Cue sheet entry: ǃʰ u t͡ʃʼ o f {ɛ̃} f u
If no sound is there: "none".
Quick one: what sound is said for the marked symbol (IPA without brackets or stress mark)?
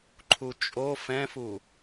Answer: ɛ̃